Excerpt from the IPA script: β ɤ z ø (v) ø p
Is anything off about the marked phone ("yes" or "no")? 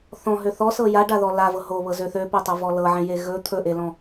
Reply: yes